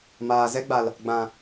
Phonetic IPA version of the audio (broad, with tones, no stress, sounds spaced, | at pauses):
m aː˨ z ɛ˦ ɡ͡b a˨ l | ɡ͡b ã˨